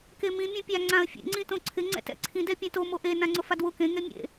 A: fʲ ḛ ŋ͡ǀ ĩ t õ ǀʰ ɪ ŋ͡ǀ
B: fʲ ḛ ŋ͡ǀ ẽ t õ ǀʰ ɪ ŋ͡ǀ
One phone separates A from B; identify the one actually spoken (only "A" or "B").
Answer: A